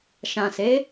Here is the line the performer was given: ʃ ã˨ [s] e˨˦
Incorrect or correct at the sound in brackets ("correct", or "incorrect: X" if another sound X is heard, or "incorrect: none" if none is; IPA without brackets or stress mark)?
correct